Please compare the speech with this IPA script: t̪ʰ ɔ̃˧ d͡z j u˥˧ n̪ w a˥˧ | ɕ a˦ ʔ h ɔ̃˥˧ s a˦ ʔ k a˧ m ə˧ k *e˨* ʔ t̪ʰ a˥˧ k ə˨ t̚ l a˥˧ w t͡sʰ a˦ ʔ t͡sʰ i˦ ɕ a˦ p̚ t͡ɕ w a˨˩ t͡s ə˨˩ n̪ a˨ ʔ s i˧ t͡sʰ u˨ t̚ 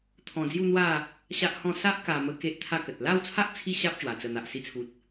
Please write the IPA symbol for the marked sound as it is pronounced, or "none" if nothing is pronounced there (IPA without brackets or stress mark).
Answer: e˦